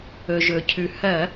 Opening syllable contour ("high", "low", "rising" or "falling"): low